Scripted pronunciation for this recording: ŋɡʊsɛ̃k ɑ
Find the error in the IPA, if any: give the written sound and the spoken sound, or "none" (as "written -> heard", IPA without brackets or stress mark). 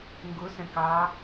none